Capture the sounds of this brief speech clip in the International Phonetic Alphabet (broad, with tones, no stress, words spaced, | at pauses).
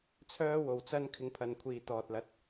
t͡sʰœː˥wo˨wt͡sɐ˥n kʰɪ˧ŋpʰɐ˨nkʷʰiː˨ t̪ɔː˨t̚lɐ˨˥t̚